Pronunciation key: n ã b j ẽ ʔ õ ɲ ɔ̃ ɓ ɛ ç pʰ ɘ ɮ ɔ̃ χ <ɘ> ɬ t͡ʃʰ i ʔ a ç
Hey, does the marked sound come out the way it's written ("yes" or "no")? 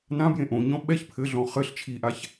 yes